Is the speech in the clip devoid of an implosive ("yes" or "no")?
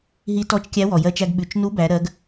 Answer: no